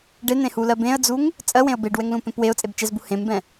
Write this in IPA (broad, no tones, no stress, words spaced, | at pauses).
ɖen̪ẽhulɜ bẽə̯d͡zuŋ | t͡sʼɜwẽə̯ beɖwɛŋlũpẽp weʊ̯t͡sʼebt͡ʃɛzbu hẽmbɛ̃